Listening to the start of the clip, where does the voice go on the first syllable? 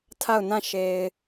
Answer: falling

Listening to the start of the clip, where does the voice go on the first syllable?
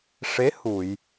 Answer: rising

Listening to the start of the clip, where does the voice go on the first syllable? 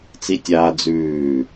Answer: high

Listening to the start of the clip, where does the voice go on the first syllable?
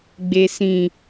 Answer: low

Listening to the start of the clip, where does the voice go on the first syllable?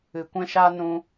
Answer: low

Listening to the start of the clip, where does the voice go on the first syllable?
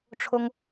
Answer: high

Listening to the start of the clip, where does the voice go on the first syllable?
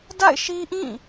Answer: falling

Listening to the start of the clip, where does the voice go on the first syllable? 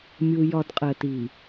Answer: high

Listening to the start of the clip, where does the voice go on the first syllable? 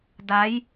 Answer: rising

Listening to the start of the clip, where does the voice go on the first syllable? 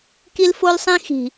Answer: high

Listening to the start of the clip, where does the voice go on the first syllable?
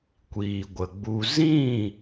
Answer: low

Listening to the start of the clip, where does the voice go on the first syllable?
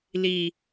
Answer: low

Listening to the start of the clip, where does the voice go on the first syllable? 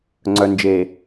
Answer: low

